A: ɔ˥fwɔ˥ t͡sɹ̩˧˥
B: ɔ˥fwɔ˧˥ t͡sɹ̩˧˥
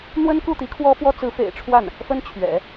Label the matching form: A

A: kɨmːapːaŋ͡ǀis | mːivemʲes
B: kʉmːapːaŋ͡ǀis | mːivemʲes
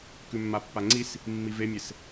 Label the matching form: B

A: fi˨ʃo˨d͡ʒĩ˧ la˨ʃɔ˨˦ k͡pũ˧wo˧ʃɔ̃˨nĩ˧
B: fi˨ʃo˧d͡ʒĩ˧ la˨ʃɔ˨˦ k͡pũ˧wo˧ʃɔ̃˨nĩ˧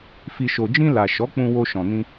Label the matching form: A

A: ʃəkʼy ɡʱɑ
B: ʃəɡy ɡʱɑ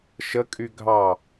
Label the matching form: A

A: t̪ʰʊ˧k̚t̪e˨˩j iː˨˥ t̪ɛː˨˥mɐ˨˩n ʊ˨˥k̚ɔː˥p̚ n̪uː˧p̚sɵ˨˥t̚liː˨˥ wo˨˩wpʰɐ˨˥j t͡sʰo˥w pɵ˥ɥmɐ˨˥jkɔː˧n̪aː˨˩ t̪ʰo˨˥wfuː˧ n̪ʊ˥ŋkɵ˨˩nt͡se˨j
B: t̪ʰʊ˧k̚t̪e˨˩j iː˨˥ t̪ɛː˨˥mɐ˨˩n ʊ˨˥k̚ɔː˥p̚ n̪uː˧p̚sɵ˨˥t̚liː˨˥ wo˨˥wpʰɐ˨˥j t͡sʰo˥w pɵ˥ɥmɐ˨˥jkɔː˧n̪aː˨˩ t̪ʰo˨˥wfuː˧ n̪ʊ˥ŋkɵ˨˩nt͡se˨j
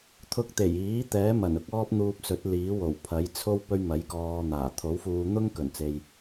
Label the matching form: A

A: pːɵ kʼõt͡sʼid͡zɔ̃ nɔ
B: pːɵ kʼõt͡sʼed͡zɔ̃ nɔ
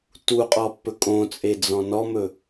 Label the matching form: B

